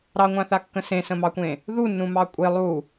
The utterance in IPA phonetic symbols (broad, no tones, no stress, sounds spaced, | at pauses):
ɾ ɑ ŋʷ ã θ a kː ə̃ s ẽ s ə̃ m ɑ kʷ ẽ | ð u nː ũ m ɑ kʷʼ e lˠ u